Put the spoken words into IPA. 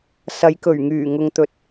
s ɐ˨˧ j k ɵ˨˩ ɥ ŋ yː˨˩ ŋ ʊ˨ ŋ t̪ ɵ˨ t̚

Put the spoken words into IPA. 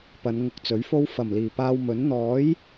p ɐ˨˧ n ŋ ʊ˧ k̚ t͡s ɵ˨˥ ɥ f o˥ w f ɐ˨˩ m l iː˨˩ p aː˧ w m ɵ˨˥ n n̪ ɔː˨˥ j

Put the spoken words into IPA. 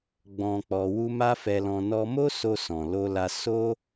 ɡ͡b ɔ̃˧ k͡p ɔ˧ w u˦ m a˦ f ɛ˧ l ɔ̃˧ n ɔ˧ m o˦ s o˧ s ɔ̃˨ l o˧ l a˧ s o˦

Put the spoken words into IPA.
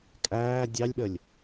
kʼ æː dʲ ɑ lʲ ɓ ə lʲ

